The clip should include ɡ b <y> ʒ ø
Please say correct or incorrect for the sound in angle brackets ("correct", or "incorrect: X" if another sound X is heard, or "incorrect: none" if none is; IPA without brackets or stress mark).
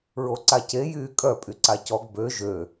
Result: incorrect: ø